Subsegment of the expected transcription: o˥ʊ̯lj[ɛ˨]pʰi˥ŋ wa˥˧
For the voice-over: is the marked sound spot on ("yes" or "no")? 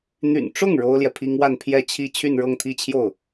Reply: yes